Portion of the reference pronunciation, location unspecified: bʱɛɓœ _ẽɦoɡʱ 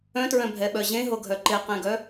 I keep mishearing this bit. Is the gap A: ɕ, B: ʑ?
B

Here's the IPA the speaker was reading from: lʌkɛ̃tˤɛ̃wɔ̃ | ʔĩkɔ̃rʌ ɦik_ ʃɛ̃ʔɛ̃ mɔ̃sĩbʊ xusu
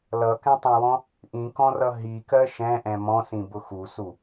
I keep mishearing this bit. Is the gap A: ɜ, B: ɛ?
A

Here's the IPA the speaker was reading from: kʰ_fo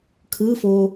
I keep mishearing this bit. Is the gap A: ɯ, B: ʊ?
A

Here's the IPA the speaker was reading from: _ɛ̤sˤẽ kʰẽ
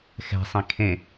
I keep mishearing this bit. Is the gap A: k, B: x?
B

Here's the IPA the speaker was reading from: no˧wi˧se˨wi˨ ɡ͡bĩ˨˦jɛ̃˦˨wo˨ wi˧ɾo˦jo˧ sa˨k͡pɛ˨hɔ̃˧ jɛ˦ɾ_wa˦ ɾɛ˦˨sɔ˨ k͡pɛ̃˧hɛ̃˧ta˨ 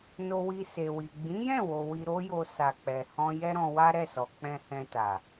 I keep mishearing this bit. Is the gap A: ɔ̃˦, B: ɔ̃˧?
B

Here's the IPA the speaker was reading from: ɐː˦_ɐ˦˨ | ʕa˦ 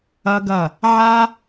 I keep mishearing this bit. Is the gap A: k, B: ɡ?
B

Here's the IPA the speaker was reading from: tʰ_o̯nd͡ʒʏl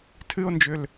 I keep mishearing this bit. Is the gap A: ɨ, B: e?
A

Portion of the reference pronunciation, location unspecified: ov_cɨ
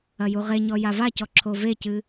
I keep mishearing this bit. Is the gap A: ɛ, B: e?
B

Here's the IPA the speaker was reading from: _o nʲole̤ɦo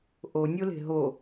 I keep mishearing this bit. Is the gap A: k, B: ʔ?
B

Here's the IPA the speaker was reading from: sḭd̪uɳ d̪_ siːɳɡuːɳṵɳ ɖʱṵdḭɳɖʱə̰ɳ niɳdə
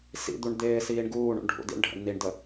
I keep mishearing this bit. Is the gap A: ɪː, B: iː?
A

